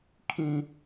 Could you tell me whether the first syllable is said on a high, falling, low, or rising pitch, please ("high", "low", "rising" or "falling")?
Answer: high